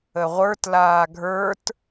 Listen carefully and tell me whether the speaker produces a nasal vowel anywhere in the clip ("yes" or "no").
no